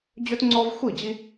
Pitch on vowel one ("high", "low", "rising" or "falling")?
high